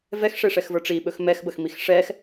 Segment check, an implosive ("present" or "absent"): present